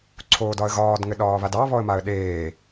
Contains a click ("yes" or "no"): yes